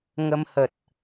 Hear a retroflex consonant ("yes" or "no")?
no